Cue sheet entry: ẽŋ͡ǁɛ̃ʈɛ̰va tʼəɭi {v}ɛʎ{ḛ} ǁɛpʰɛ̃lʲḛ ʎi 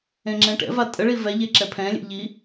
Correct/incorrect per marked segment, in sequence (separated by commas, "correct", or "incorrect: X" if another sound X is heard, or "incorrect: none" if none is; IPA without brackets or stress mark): correct, incorrect: e